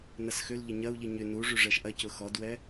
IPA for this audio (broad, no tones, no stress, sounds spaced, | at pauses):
n ɐ s x ʏ l ʎ ɪ ɲ ɐ u̯ ʎ i ɲ ʏ n u ʐ y ʐ ɛ ʃ ʔ ɐ c ʊ x ɔ d w ɛ